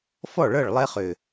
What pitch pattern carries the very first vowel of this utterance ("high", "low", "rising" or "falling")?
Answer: falling